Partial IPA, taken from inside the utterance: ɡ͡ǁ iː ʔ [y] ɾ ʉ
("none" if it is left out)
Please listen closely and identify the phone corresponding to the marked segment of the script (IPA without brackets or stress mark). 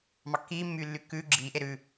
e